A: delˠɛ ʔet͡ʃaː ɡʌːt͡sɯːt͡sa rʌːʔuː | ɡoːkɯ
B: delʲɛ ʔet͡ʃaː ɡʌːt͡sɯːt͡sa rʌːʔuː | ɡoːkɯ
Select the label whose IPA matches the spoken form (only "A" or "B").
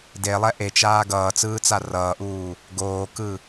A